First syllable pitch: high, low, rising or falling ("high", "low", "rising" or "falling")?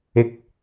rising